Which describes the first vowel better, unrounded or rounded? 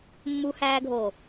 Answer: rounded